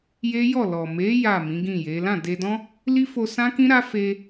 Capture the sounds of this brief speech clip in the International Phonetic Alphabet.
j e˦ j ɔ˦˨ l ɔ˨ m e˨˦ j a˦˨ m ĩ˨˦ ɡ ĩ˦˨ j e˨˦ l ã˦˨ d e˧ d ɔ̃˦ | l i˦ f o˧ s ã˦ k ĩ˦ ɾ a˦ f e˧

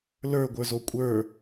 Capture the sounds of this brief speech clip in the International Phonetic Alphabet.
l ə˞ ɡʷ ə˞ z o kʷʼ ə˞

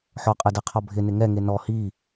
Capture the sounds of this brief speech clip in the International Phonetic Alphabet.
ħ ɔ qʼ ɛ d ɛ qʰ ɔ bʱ ɪ n ɪ ŋ ɛ ŋ e n ɔ h i

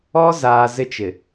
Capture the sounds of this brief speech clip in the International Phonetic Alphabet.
ɔ˦ z aː˨ z ɪ˦ t͡ʃ ɪ˨

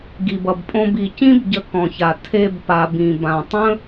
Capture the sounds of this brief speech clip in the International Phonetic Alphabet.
ɡ i˩ b ʌ˩ b pʼ õ˧ b i˩ c ĩ˥ b ɟ ə˧ k ɔ̃˩ ç a˩ tʰ e˧ b p a˩ b ĩ˩ b ã˩ tˤ ə̃˥

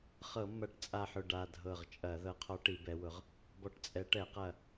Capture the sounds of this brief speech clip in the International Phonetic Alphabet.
χ ɤ˧˩˧ mː ɐ˧˩˧ ʈ t͡sʼ a˧˩ ħ ʊ˧˩ ɖ a˧˩ dʱ ɤ˧˩ ʁ t͡ʃʼ ɐ˧˩˧ ð ɤ˨˦ qʰ ɔ˨˦ ʈ i˧˩˧ b ɛ˨˦ w ʊ˨˦ ʁ | b ɔ˧˩ ʈ t͡sʼ ɛ˨˦ ʈ ɛ˧˩˧ q ɐ˧˩

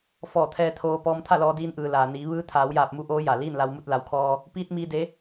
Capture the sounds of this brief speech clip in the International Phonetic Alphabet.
f ɔː˧˩ t̪ʰ ɛː˧ t̪ʰ oː˧ p ɔː˧ m t̪ʰ a˥˨ l ɔː˧ d iː˧ n ʔ ɯː˩ l aː˩ n iː˩˧ ʋ ɯː˧ t̪ʰ aː˩˧ w j aː˧˩ p̚ m u˧ ʔ oː˧˥ j a˩ l iː˥˨ n l a˧ w m u˥˨ t̚ l a˩˧ w kʰ ɔː˧ | p iː˧ t̚ m iː˧ d e˧˥

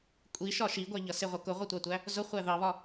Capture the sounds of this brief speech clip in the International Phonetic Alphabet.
kʷʼ i ʃ ɒ ʃ i ɡʷ æ ʎ ʌ s ɪ ʁʷ ʌ k ʊ ʁʷ ʌ tʷ ɑ tʷ æ | z ʊ χʷ æ ð ɑ β ɒ

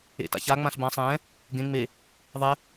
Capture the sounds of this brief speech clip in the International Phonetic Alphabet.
ḛ t a̰ ç a ŋ͡m ã ɬ b ã sˤ ɛ̃ | ɡ ẽ ŋ͡m e | ðˤ ɛ

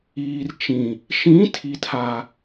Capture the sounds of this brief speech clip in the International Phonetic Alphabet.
iː˨ r t͡ʃ ĩ˨ | ʃ ĩ˨˦ tʰ i˨ tʰ a˨

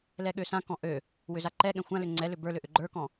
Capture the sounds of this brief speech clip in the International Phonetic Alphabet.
l ɛ ɠ ø s ã k ɔ̃ ʔ ø | w ʏ z a ǃ ɛ ɠ ɛ̃ xʷ ã l ʏ ŋ͡ǀ ɛ l ʏ b ə˞ l ʏ ʔ ʏ ɡ͡ǃ ə˞ k ɔ̃

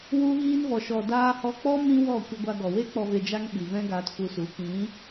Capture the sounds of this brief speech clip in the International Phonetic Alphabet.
w u˧ ɣ iː˧ n v ɔ˨ ʃ ɔ˨ d aː˧ h ɔ˧ k͡p ɔ˦ m ĩ˦ w ɔ˦˨ kʷ ə˧ ɡʷ a˧ ɡ ɔ˨ w e˦ k͡p ɔ˧ v e˧ d͡ʒ a˦ ŋ ɓ i˨ v ɛ̃˦ ɡ aː˧ t f u˧ s u˨˦ k ĩ˨˦

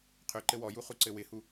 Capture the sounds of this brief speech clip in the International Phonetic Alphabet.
qʰ ø ǃ ɘ w ɔ j u χ u ǀ ɘ w ɪ h u

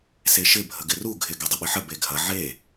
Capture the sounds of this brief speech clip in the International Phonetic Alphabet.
s e ʃ ɪ bʱ ə ɡ ɪ r u ɡʱ ɪ ɡ ɛ dˤ ʏ ɓ ɪ ħ ə b e ɡʱ ɐ ʕ e

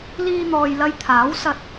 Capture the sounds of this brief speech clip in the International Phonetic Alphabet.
l iː˧ n̪ ɔː˨ j l ɐ˧ j t̪ʰ aː˨˥ w s ɐ˧ t̚

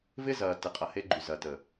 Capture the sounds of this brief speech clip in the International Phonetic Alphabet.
v ɪ˦ z ɐː˨ t ɪ˨˦ qʼ ɐ˨ h e˧ ɡ͡ǃ y˨ z ɐː˨ t ə˨

